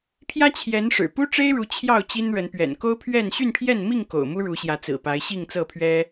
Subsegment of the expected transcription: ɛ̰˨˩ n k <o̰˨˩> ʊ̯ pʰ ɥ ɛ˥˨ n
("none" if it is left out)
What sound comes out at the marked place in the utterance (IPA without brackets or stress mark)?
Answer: o˦